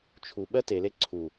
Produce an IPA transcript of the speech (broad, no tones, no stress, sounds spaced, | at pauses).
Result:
t͡ʃʰ u ɓ ɜ t e l e ǀʰ u